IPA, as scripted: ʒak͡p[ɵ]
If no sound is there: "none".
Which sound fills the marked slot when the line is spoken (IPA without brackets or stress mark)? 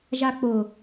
ʊ